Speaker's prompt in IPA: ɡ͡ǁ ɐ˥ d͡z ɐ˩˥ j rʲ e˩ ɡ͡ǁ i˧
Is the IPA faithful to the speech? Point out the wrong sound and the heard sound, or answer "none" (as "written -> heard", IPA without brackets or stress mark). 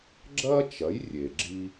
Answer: d͡z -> t͡ʃ